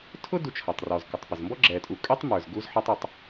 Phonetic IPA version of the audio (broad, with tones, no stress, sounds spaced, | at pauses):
tʰ ʊ˥ d u˨ t͡ʃʰ ʌ˩ tˤ r ɔ˩ z k ə˩ tˤ p ə˩ z m b ɔ˥ ɡ͡ǁ ɛ˩ tʼ u˩ kʼ ɛ˥ tˤ m ə˞˩ z ɡ u˦ z ħ ʌ˦ tˤ u˩ tˤ